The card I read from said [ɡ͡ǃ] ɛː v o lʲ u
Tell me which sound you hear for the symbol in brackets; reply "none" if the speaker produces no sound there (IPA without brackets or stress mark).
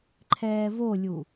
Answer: ǃʰ